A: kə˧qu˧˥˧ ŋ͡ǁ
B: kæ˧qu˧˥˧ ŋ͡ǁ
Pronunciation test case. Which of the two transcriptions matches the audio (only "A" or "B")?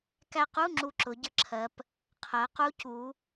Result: B